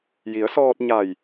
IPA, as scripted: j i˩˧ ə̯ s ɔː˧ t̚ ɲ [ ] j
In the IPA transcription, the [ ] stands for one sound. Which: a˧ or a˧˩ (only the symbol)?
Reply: a˧˩